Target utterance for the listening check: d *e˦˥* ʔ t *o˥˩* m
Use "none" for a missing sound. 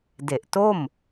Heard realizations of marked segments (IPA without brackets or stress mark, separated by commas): e˨˩, o˥˩